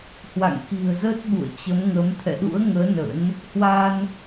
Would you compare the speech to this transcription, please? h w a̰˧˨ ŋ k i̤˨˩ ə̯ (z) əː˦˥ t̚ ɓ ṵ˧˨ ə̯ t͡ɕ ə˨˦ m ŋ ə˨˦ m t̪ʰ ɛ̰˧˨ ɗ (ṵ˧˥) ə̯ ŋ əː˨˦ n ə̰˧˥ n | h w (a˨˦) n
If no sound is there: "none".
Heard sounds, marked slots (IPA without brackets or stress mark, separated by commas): z, ṵ˧˥, a˧